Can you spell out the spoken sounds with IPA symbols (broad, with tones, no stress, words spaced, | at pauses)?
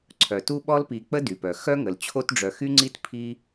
ǀʰœ˩tu˦ɓɔ˦lpi˨ k͡pə˦dy˩pœ˩ xœ˥ŋə˩l t͡ɕʰo˦tɖ͡ʐœ˨xy˥ŋ͡ǀi˥t pʰi˦